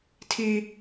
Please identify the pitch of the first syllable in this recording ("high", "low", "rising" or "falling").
high